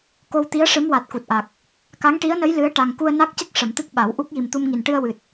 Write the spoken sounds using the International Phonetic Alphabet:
k o˧ w t̪ i˧˥ ə̯ ʂ ɨ˧˥ m w a˨˩ t̚ k u˨˩ t̚ ʔ a˨˩ k̚ | k a˧˥ ŋ ʈ i˧˥ ə̯ n ə˧˥ j l ɨ˧˥ ə̯ ʈ a˨˩ ŋ k u˧ ə̯ n a˦˥ k̚ c ə˦˥ k̚ ʂ ə˨˩˨ m t̪ ɨ˦˥ k̚ ɓ a˨˩˦ w ʔ u˦˥ k̚ j i˨˩ m t̪ u˧ m ŋ i˨˩ n ʈ ɨ˧ ə̯ w ɨ˨˩ t̚

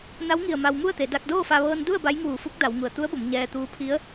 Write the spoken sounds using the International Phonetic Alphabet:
n a˧˥ w ŋ i˧˩ ə̯ m a˧ w m u˥˨ ə̯ t̪ e˩˧ d a˧ k̚ d oː˥˨ f a˧ ʋ ɤː˧ n d u˥˨ ə̯ b a˧˥ j ŋ uː˧˩ f u˧˥ k̚ d a˩˧ w ŋ u˩ ə̯ t̪ u˧˥ ə̯ b o˩˧ m ɲ ɛː˧ t̪ uː˧ pʰ i˧˥ ə̯

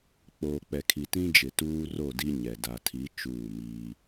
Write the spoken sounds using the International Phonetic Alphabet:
k͡p oː˨ k͡p ɛ˨ kʰ i˨ t ĩ˦ d͡ʒ ɪ˨ t uː˦ r o˦˨ d i˦ ɲ ɛ˨ d a˨ tʰ i˨˦ t͡ʃ uː˦˨ m iː˦

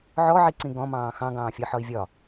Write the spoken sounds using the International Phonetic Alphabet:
ʕ ɔ ʕ i ǀ ĩ ɡ ɔ̃ m ɑ̃ː x ɑ̃ ɡ ɑ̃ː fʲ ʌ ħ ɒ i̯ vʲ ɒ

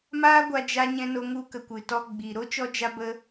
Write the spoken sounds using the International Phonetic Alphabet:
m aː˦ ɡʷ a˧ d͡ʒ a˧ ɲ ɛ̃˧ n o˧ ŋ u˧ k ə˨ kʷ ɨ˨ t ɔ˧ ɡ͡b iː˨ ɾ o˦ t͡ʃ ɔ˦ d͡ʒ a˦ b ə˦

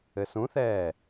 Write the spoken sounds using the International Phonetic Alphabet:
ɘ s ũ θ ɛː

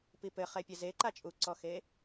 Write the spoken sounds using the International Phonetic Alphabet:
p i p ɘ χ ɛ pʲ ɐ z e ǃ a t͡ʃʼ u ǀ ɔ x e

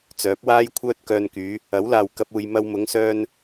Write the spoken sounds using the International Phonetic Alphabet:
t͡s œː˨˥ p̚ w aː˥ j kʷʰ œː˥ t̚ k œː˧ n k yː˨˧ | ɐ˨˥ w l aː˨ w k ɐ˥ p̚ uː˧ j m ɐ˧ w m ʊ˨˧ ŋ s œː˧ n

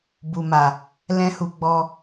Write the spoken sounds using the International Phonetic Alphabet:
b u˨ m a˨ | l ɛ̃˧ h u˨ ɡ͡b ɔ˧

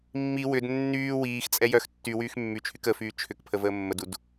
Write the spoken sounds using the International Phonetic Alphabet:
mː i w ʏ d nː yː w iː x t͡sʼ ɛ j œ x tː y w yː x mː y t͡ʃʰ y k ə f yː t͡ʃʰ ʏ k pʰ ə v əː mː ə d u d

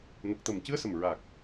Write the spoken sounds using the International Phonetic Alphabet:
n ə˨˩ k̚ t̪ ə˨˩ m c ɨ˧˥ ə̯ s ə˨˩ m ɹ a˨˩ k̚

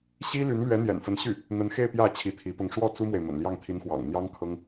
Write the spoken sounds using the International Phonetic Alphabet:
ɕ i˥ l y˧˥ n l ɥ ɛ˧˥ n̪ j ɛ̰˨˩ n f ə˧˥ n ɕ y˥˩ | n̪ ə˧˥ n x e˥˧ ɪ̯ p j ä˥˩ t͡ɕʰ i˧˥ t̪ʰ i˧˥ p ʊ˥˧ ŋ ʂ w ɔ˥˩ t͡s u˥ m w e˨ ɪ̯ m ə̰˨˩ n l j ɑ˥˩ ŋ t̪ʰ i˧˥ n x w ɑ̰˨˩ ŋ n̪ j ɑ˥ ŋ kʰ ɤ˥ ŋ

